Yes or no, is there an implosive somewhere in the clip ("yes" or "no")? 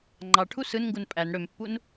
no